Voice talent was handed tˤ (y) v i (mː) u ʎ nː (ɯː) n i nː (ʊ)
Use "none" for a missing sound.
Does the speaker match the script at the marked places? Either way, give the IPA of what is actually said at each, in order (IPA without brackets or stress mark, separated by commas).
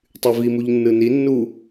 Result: y, m, ɯ, u